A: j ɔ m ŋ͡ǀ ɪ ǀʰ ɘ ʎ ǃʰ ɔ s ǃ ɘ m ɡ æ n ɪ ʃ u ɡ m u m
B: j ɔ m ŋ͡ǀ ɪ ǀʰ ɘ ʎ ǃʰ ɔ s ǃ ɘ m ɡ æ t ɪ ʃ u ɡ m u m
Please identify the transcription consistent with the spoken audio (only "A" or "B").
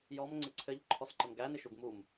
A